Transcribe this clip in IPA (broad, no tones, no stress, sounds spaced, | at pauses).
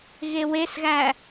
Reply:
ɣ e w e s ɣ æ